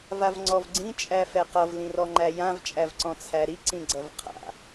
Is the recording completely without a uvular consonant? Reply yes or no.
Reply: no